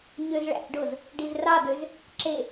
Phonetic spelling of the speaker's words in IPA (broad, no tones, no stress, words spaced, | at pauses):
ɲøzɭæ̰ɖoz | ɖizrɑd̪øz | ǁe